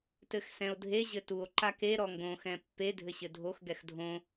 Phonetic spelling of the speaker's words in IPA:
t ɘ x s ɛ̃ o̯ dʱ e ʑ ɘ t u o̯ ǃ a k e ɾ ɔ ŋ ɡ õ x ɛ̃ pː e dʱ ɘ ɕ ɘ dʱ o x ɡ ɛ x dʱ õ

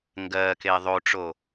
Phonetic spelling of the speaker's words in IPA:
ŋ ɡ ɜː k e ðˤ o ʈ͡ʂ o

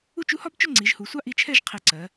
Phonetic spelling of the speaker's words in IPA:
u˥˧ t͡ʃ u˥ h ɒ˥ b t͡ʃ ʊ˥˧ ŋ͡ǀ i˩˧ ʒ h u˩˧ sʷ ɑ˥ ʔ i˧ t͡ʃʰ ɛ˥˧ ʒ qʰ i˧˩ ǀ ɜ˩˧

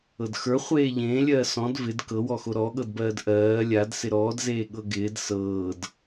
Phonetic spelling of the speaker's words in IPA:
ɤ d x ə˞ χʷ eː ʎ ẽː lʲ ɜː s ɔ̃ d v ɪ d k ɤ w ɔ x o ɾ ɔ ɠ ɤ d b ɜː d ʔ ɜː lʲ a d s ɪ ɾ ɔː d z eː ɠ ɤ ɡ ɪː d s ɤː d

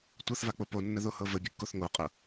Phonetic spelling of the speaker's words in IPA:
tʷ ɤ θ v a k͡p o p o nː ə ð o h ɤ v ə bʲ ə kː o θ ŋ o qʼ ɤ

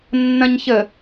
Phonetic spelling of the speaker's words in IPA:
nː ɐ̃ ɲ ç ə

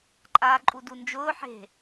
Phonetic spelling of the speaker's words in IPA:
ǃʼ aː ǃʼ u d u n d͡ʒ ʊː ħ e̤

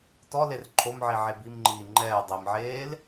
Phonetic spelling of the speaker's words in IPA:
t ɔ l e r ǃʰ o m ʕ i ʕ e b i m ŋ͡ǃ iː ŋ͡ǃ ɛː dˤ i m ʕ eː l

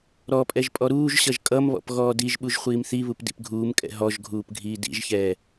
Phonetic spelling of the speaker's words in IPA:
ɾ ɔ pʼ ɛ ʒ pʼ ɔ ɾ uː ʒ ɕ ʌ ʒ kʼ ʌ m β ɔ̰ p ɣ ɔː d i ʒ ɓ u ʒ χʷ iː m θ i β u p d ḭ p ɡʱ uː m kʼ ɛ̰ ɦ ɔ ʒ ɡʱ uː p ɡʱ iː d ḭ ʒ ç ɛː

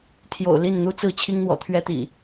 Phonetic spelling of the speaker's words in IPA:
t̪ʰ j o̰˨˩ ʊ̯ l i˥˨ n n̪ u˦ t͡s ɹ̩˥˨ t͡ɕʰ i˦ ŋ n̪ w ɔ̰˨˩ t̪ʰ ɥ ɛ˦ t̪ ḭ˨˩

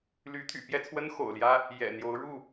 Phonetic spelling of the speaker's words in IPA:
l y˨˦ t̪ʰ y̰˨˩ p j ɛ˥˨ t͡sʰ w ə˦ n x o̰˨˩ ʊ̯ l j ä˦ | j ɛ̰˨˩ n̪ j o˨˦ ʊ̯ ɻ u˥˨

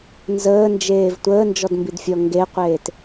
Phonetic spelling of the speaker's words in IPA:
n z əː n d͡ʒ eː v tʷ əː n d͡ʒ ɔ d m b i d fʲ ɔ ŋ ɡ e qʷ eː t

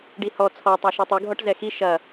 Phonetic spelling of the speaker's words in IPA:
ɖ i h ɔ t͡sʰ ɔ tˤ a ʃ ɔ tˤ ɨ ɡʱ ɔ ʈ z ɛ x i ʃ ɐ

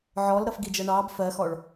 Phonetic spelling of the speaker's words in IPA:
ʕ ɔ l ɾ ʌ f ɡ i d͡ʒ ʌ ɳ ɑ b f ɜ x ɔ ɭ

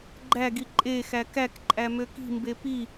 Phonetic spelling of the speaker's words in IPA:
ɡ͡ǃ æ ɡ i ǃʼ e x æ k æ k ǃʼ æ m ø k i̤ m b e p i

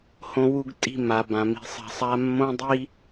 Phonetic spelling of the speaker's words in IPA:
h õ˧ w u˧ ɡ tʼ i̤˦˨ m a˨ b ã˨ m i̤˧ sˤ ɛ̤˧ sˤ a˦ mː õ˦ dˤ i˦

